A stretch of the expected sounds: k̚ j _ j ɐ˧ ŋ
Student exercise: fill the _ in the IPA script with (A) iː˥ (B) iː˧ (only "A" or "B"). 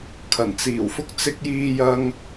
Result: B